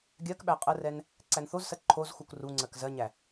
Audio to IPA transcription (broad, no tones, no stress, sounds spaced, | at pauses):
ɡʲ ɜ k ɓ æ qʼ ə r ɛ n | ǀ æ n θ o z s ɜ ǃʰ o z x u k r u ŋ͡ǀ ɜ k z ɜ ɲ æ